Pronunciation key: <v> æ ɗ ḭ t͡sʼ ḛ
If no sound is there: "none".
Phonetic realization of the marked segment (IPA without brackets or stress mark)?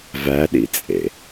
v